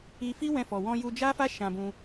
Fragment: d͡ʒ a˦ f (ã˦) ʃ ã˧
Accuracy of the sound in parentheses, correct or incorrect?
incorrect